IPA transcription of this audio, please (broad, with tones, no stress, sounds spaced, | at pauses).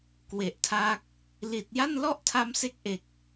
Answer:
k w e˨˩ ʔ tʰ a˦˥ k̚ | l i˨˩ t̚ j a˥˩ n l ɔ˥˩ ʔ tʰ a˦˥ m s e˦˥ k̚ ʔ e˨˩ k̚